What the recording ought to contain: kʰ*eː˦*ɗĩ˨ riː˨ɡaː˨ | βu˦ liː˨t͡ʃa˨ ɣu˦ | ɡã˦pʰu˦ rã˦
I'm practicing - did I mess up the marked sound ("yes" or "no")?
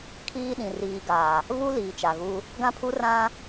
yes